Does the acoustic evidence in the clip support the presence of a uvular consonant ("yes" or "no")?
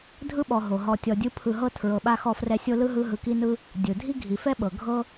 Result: no